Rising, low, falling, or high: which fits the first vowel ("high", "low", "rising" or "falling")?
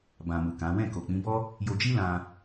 low